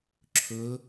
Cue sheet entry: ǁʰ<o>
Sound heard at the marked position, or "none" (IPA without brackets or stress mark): ɵ